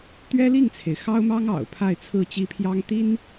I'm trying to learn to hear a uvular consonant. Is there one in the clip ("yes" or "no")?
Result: no